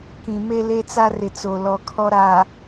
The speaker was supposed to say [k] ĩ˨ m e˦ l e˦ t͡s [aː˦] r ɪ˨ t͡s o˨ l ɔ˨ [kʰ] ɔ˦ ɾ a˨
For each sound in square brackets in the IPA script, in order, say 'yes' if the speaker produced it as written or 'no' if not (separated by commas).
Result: yes, no, yes